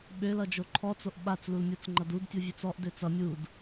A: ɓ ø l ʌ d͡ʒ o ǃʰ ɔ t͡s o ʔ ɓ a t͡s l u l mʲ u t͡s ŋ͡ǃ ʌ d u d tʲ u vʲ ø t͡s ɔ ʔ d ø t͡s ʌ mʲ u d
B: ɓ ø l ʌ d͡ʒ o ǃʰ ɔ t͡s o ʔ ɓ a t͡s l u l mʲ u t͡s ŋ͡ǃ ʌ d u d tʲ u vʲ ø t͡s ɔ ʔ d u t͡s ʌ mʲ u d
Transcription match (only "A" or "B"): A